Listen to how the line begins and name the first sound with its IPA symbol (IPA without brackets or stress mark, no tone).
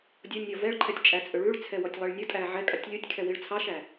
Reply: dʲ